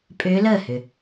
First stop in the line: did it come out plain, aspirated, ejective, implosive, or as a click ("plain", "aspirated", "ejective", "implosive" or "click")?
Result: ejective